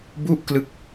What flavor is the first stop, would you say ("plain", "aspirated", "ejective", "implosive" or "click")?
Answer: plain